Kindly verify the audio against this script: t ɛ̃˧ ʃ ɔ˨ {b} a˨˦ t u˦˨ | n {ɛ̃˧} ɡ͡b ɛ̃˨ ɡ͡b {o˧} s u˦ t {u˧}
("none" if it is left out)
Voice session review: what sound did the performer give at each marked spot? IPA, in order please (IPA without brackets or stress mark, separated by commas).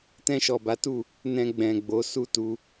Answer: b, ɛ̃˧, o˨˦, u˧